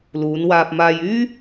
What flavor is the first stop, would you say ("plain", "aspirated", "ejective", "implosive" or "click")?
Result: plain